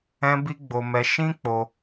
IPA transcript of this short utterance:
ɛ̃˦bi˦ ɡ͡bo˧mɛ˧ʃĩ˦k͡po˧

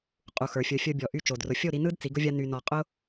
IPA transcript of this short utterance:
qʼu˨xə˞˨ fʲə˞˨fʲə˞˧bʲɔ˨ʔy˧ t͡ʃo˨drʊ˨ fʲo˦˨ɾi˧nɯ˦d t͡si˨˦ɡʊ˦vʲa˦ ny˧nɔ˧ qʼʊ˦

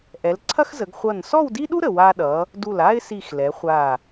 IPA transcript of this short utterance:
ʔɛ˩˧lǀʰɐ˥x zə˩˧ɡχʷʌ˧˩n sɔ˥˧wdi˥ɗu˥ ɾə˩˧w a˧ɗʌ˩˧ | du˧˩la˥ɪ̯si˧˩x lɛ˩˧χʷa˧˩

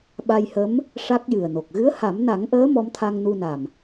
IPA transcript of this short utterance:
ɓa˧jhə˧˥m | ʂa˦˥k̚jɨ˨˩ə̯no˨˩k̚ ɣɨ˧˥ə̯ha˨˩˦mna˨˩˦ŋʔəː˧˥ mɔ˧˥m t̪ʰa˧ŋnu˧na˨˩m

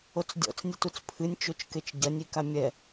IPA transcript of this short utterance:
ot͡sdʲɔ̰t͡s nʲɨtut͡spʰɨnʲ t͡ʃot͡ʃket͡ʃɟɐnʲ ikamʲɛ

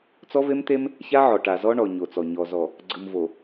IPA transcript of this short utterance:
t͡sɔ˦ve˦mt̪e˦m | ça˦ʕɔ˨ ʈa˨ zɔ˦ɳɔ˨ ɲo˨t͡sɔ˨ɲɔ˨ zɔ˨ | ɡ͡ǀɯ˨mvo˨

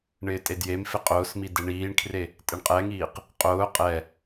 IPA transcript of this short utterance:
ɳɪːtʼedjemfɪ qʼʊːsmi deɳiːɳkʰre | tʼɪɳqʼɛŋiːq | qʼʊː qʼɛ

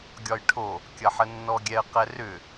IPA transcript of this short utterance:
ɡʲɒjʈʰo | kʲɐħənːɔɡʲɛə̯ qɛrʏ

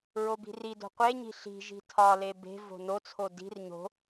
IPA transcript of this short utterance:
ɹobi̤rido̤ qʷeɲi̤ ɬi̤ʒi̤ tʰɒle be̤vo̤ not͡sʰo di̤r ɲo̤

